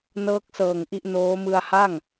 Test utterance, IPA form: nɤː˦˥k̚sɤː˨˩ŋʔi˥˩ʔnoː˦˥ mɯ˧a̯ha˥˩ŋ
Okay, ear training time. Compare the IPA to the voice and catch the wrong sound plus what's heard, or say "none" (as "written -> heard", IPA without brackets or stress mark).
none